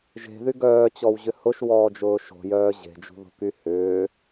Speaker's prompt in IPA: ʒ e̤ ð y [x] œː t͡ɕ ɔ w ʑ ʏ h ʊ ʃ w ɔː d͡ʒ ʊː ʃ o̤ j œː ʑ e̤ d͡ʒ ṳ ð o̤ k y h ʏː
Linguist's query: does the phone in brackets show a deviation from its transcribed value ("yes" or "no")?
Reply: yes